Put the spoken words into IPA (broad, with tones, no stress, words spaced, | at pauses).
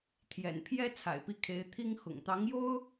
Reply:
t̪ʰjɛ̰˨˩npʰjɛ˥ t͡sʰa̰˨˩ɪ̯pi˥˩kʰe˧˥ɪ̯ t̪ʰi˥ŋ xʊ̰˨˩ŋt̪ɑ˧˥ŋjo˥ʊ̯